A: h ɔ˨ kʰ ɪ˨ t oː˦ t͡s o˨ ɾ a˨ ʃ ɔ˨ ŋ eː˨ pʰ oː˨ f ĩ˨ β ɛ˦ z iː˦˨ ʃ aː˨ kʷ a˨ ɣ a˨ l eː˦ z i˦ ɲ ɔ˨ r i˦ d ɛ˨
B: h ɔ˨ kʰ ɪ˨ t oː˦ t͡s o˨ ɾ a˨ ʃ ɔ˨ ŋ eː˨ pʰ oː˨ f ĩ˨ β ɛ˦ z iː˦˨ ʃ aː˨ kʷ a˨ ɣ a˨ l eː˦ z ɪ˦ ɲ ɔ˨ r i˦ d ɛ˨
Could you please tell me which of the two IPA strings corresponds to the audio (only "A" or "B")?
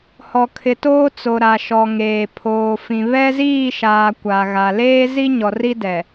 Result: A